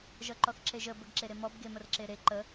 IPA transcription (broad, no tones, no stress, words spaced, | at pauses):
ʒʌǃɔθǁeʒə bəɡǁeɾemɔb ɡemərǁeɾe ǃə